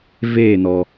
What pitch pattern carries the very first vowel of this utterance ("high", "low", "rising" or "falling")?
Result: falling